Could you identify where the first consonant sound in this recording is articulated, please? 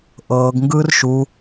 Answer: glottal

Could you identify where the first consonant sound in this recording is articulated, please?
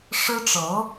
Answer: retroflex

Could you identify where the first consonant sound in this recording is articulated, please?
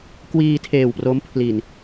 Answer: velar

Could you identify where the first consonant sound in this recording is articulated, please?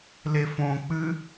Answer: alveolar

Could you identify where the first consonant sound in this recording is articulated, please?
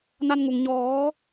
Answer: alveolar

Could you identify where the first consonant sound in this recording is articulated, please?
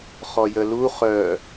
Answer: uvular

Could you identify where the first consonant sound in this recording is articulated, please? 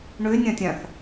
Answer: retroflex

